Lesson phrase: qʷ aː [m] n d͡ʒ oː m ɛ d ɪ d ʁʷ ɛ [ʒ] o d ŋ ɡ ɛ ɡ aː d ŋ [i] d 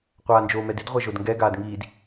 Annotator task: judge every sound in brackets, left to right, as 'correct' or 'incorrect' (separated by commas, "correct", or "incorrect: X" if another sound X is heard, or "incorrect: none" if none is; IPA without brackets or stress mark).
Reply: incorrect: none, correct, incorrect: iː